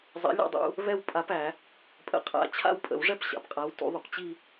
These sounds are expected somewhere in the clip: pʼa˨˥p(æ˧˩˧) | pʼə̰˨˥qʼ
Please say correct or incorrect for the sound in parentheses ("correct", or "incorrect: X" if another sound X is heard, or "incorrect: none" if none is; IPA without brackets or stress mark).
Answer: correct